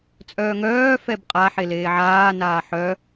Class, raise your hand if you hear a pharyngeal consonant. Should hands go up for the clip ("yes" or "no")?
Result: yes